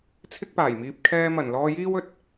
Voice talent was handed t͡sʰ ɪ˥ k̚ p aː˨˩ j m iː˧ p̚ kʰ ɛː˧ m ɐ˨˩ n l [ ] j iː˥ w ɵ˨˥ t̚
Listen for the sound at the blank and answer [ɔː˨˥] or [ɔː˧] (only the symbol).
ɔː˧